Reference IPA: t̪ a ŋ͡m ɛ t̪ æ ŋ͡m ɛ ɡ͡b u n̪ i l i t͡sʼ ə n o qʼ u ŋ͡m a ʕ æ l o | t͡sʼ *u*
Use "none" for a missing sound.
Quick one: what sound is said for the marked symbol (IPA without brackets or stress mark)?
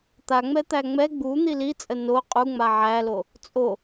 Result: o